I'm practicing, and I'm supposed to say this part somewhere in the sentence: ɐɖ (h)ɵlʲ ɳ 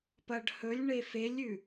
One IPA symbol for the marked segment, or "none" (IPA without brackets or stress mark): h